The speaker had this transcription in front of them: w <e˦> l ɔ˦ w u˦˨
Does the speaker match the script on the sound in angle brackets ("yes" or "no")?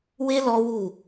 yes